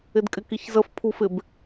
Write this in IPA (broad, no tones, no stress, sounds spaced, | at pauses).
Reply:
ɪ d kʼ ɪ k i ç z ə f pʰ u f ɪ b